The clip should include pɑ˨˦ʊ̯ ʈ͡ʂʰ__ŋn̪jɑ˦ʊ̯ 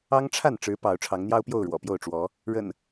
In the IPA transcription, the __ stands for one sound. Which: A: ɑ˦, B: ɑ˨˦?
B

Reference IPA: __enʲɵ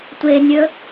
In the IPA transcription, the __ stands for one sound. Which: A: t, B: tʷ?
B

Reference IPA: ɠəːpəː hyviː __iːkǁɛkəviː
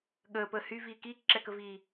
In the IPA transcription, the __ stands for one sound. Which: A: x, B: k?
B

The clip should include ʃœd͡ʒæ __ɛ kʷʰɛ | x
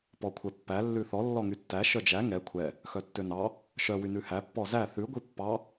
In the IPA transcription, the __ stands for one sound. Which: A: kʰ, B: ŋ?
B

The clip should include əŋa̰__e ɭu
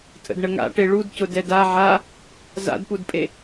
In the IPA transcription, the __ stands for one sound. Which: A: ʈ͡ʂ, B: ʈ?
B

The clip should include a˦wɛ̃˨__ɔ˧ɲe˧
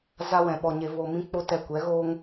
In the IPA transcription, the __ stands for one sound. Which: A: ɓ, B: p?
A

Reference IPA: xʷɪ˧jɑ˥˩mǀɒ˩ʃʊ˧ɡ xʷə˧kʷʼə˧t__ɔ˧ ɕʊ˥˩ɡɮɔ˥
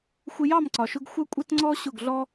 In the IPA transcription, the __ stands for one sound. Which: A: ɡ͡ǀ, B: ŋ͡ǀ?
B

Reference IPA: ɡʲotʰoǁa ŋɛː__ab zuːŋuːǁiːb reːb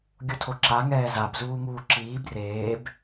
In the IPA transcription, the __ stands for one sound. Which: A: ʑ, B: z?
B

